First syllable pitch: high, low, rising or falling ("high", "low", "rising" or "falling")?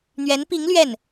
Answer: rising